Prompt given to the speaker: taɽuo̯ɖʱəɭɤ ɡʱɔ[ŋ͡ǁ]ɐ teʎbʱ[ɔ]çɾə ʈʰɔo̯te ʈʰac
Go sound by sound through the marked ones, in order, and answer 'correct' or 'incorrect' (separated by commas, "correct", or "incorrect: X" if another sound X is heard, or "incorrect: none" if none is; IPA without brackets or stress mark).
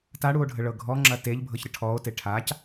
correct, incorrect: ɤ